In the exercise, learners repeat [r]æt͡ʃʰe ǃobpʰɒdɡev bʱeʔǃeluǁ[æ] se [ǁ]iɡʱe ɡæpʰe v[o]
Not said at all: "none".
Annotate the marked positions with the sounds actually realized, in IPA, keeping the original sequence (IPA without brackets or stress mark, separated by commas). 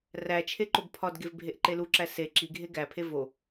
r, æ, ǁ, o